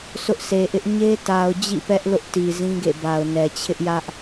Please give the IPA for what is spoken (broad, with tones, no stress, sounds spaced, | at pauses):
sʰ ʊ˦ ʔ s e˨ ʔ ɪ˦ ʔ ɲ e˦ t a˨ ʊ̯ d͡ʑ ḭ˦˨ p ɛ˦ ʔ l ʊ˦ ʔ t i˨ z ĩ˦ ɡ ḛ˦˨ b a˨ ʊ̯ n ɛ˨ t͡ɕʰ ɪ˦ ʔ j ä˦ ʔ